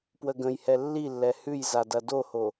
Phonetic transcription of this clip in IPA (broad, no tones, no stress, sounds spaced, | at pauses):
p w ə ɡ ə̃ j h ɛ lː i lː ɛ h ʉ j z a d ɐ d o h o